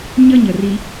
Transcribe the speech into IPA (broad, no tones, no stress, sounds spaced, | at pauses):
ɲ ə ɲ ə r i